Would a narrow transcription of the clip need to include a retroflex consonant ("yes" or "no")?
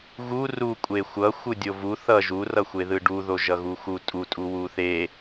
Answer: yes